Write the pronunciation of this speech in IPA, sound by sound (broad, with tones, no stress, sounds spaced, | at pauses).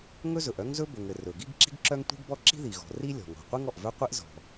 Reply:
ŋ ɵ˥ z ɵ˩ ʔ œ˥ ŋ z ɵ˥ b ɵ˩ ŋ ɘ˩ r ɵ˩ ɡ i˥ ɡ ǁ i̤˥ ɡ ǁ œ˥ ŋ tʷ i̤˥ ɡ b ɔ˥ ǁ i̤˥ ð i˩ ɣ ɔ̤˩ r i˥ lʲ ɔ̤˩ ŋ ɔ̤˩ qʷ i˥ ŋ ɔ˩ ʔ v œ˥ qʷ i˥ ʔ z ɔ̤˩